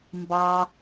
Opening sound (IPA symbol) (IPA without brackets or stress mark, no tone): m